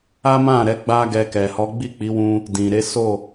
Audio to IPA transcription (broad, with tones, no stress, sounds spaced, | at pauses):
a˦ m ã˦˨ ɾ ɛ˨˦ ɡ͡b a˦ ɡ ɛ˧ k ɛ˨ h ɔ˨˦ ɡ͡b i˦˨ k͡p i˨˦ w ũ˧ | d ĩ˨ ɾ e˨˦ s o˦˨